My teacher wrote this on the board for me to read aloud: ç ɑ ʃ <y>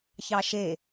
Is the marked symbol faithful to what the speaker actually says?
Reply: no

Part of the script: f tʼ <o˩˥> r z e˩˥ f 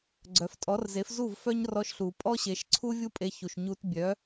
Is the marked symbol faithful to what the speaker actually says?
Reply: no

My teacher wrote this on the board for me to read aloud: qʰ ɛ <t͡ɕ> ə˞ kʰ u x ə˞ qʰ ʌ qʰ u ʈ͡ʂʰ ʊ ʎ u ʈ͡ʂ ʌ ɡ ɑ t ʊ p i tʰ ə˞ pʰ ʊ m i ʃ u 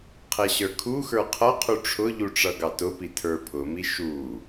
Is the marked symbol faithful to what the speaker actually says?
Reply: no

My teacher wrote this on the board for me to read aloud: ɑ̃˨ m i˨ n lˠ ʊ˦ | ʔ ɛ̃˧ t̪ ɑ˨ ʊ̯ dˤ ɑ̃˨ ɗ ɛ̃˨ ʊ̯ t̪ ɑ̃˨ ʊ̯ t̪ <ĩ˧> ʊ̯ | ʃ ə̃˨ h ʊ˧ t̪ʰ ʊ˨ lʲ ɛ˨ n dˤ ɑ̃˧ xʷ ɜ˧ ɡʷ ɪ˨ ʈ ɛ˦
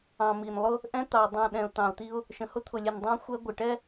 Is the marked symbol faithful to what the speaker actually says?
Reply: no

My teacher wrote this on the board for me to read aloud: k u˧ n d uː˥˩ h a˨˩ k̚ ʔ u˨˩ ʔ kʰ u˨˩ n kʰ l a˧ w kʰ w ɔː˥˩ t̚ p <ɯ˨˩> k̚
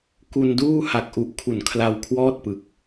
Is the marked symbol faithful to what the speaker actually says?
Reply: yes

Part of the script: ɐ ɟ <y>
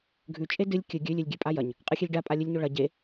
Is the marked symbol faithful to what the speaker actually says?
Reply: no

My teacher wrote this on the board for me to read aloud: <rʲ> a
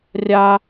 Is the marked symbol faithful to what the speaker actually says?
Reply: yes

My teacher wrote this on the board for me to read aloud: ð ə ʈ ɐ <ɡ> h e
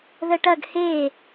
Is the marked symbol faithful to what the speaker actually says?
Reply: yes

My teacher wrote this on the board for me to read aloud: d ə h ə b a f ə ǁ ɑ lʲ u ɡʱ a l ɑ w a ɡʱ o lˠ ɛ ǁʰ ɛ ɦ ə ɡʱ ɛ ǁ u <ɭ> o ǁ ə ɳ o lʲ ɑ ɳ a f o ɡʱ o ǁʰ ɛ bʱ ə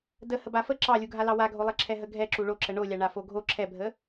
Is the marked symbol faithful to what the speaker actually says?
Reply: yes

